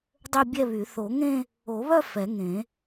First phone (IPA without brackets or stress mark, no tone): dˤ